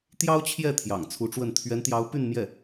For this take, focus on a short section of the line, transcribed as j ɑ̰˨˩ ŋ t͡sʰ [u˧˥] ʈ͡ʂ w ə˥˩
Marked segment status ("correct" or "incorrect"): correct